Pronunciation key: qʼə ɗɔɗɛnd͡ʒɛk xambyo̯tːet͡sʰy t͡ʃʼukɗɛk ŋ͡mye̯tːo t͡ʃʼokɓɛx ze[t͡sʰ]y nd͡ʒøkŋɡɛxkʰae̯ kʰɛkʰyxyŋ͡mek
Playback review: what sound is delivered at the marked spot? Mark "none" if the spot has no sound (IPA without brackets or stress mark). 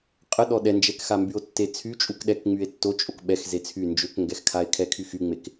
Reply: t͡sʰ